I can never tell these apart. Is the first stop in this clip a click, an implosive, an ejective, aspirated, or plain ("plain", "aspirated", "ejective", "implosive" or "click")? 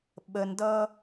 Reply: implosive